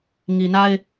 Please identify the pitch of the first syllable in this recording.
low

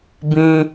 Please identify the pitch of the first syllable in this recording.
low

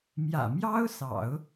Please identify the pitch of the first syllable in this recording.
low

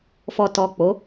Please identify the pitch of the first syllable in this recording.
low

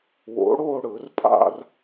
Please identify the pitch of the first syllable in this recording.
rising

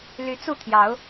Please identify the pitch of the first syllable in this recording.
rising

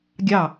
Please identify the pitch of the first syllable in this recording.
falling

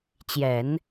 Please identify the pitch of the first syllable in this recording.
low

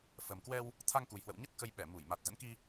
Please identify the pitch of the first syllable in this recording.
low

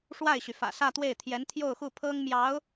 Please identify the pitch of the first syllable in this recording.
falling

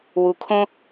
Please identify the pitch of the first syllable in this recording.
low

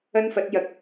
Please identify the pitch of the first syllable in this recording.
high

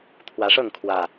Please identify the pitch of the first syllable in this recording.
rising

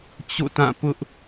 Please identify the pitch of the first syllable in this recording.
falling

